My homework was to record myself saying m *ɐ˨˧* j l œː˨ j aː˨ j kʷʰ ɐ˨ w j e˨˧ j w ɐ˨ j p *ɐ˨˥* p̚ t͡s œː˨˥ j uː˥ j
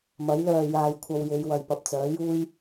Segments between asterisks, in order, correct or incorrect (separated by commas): incorrect, incorrect